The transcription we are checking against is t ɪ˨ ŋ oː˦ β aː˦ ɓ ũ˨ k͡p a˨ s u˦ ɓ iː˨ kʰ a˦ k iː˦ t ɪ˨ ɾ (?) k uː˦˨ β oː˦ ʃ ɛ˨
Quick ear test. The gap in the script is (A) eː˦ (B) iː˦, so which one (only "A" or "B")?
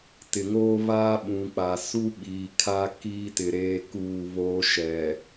A